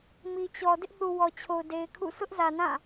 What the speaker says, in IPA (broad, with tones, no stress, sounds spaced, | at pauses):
m i˨ t͡ɕ ɔ˨ d ɪ˦ ʔ θ u˨ w ɔ˨ t͡ɕʰ o˨ ʊ̯ d e˨ ɪ̯ kʰ ṵ˦˨ sʰ ʊ˦ ʔ z ä˨ n ã˦˨